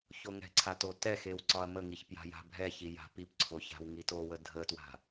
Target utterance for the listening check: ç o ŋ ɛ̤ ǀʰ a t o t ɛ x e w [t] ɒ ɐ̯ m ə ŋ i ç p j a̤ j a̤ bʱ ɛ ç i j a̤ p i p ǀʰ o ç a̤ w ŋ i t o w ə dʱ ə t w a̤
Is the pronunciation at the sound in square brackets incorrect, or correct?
incorrect: ǀ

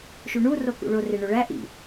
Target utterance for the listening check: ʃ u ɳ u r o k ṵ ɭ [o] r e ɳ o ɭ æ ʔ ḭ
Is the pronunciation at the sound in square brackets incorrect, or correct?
correct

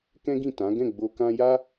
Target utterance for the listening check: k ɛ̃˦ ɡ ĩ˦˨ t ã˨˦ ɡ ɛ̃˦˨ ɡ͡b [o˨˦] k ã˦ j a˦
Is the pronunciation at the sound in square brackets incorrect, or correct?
incorrect: o˧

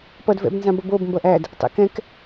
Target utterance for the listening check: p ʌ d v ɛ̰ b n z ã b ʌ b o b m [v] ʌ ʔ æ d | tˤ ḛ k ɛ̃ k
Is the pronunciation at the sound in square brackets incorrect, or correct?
incorrect: b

